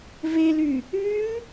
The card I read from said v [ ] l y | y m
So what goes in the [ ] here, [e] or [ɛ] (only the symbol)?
e